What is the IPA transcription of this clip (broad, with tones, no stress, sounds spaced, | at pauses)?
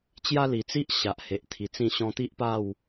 t͡ɕ j a˦ l i˨˩ t͡s i˦ ʔ ɕ a˨ ʔ h e˨ ʔ t̪ʰ i˨˩ t͡s ĩ˥˧ ɕ ɔ̃˧ t̪ i˦ ʔ p a˥˧ w